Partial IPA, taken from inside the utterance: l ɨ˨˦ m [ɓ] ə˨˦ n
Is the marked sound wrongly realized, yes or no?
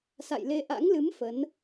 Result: yes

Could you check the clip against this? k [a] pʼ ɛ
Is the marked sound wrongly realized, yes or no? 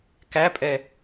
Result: yes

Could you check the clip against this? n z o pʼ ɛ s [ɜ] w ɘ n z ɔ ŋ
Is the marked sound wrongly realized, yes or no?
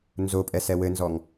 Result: yes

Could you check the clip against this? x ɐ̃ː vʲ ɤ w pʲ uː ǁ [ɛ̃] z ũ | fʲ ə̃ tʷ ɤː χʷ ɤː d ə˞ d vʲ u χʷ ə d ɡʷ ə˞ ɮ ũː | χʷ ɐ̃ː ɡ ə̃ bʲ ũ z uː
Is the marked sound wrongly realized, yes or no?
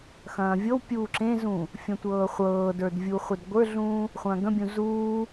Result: yes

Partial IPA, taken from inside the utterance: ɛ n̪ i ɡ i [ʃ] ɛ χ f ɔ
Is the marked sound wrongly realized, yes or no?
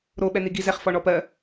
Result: yes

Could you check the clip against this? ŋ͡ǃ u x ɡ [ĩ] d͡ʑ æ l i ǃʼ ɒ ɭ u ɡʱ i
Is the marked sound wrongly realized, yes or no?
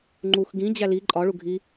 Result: no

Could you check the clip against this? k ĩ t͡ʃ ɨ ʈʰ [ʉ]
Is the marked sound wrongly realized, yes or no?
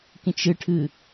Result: yes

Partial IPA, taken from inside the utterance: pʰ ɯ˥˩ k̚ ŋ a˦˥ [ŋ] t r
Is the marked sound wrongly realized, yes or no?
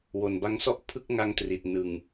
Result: no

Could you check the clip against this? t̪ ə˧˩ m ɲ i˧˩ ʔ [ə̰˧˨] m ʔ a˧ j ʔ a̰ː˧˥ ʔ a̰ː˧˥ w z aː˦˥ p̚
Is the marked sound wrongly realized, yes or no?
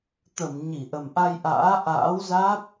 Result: yes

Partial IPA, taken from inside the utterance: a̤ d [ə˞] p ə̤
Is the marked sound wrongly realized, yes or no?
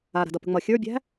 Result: yes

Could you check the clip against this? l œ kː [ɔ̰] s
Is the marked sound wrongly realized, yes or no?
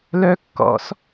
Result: no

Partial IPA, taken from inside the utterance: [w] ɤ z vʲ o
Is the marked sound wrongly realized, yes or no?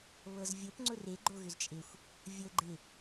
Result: yes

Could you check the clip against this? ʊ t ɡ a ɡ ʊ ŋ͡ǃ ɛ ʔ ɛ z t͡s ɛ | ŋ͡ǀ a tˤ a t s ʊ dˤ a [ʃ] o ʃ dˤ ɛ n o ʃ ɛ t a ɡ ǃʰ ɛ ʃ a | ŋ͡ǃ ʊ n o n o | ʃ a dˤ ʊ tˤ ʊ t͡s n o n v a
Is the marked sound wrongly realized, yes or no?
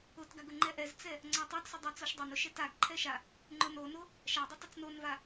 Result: yes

